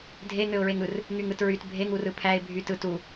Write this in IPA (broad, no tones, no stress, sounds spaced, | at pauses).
dʱ e ŋ ø ʊ̯ ɹ e ŋ ɯ r | ŋ y ŋ ɯ t ɹ y t bʱ e ŋ u r ɯ pʰ æ ɪ̯ bʱ y t ɯ t u